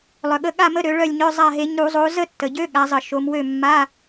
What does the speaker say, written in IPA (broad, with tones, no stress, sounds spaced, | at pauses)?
lˠ œ˩ ɠ ə˨˦ ɠ a˥˨ m ə˧˥˧ ɾ ø˨˦ ɭ œ˥˨ lʲ ɲ œ˧˥˧ zˤ a˥˨ ɦ e˨˦ ɲ ɾ u˧˩˧ zˤ o˨˦ z ə˥˨ tː ə˩ ɟ ø˧˥˧ ɠ a˨˦ zˤ ə˧˩˧ ʃ o˨˦ m w ø˥˨ mː a˧˥˧